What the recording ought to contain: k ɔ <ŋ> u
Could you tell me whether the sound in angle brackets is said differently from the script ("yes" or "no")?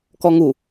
no